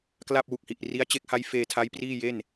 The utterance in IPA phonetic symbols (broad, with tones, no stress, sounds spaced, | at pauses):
k l a˥˩ p̚ w u˨˩ k̚ h i˨˩ ʔ r i˦˥ a̯ t͡ɕ e˦˥ k̚ h a˦˥ j f eː˧ tʰ a˦˥ j p r iː˥˩ j e˥˩ n